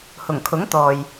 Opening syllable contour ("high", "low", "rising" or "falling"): low